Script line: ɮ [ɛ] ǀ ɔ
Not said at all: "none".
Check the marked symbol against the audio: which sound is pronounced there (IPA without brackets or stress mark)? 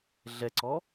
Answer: ɛ